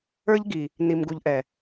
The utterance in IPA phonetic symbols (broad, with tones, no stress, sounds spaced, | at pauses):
ə˞˦ ʎ ɡ i˨ | n i˨ m ɡ u˨ ʎ ʔ ɛ˨